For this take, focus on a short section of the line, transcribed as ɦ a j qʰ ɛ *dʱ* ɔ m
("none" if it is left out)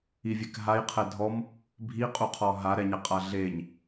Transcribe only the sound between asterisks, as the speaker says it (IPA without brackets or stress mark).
dʱ